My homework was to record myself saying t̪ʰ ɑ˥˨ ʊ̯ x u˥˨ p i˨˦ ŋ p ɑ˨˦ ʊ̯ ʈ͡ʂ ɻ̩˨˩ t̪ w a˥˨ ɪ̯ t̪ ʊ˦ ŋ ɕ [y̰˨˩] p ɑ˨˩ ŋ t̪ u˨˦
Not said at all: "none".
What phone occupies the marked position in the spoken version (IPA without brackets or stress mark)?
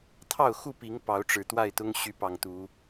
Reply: y˨˦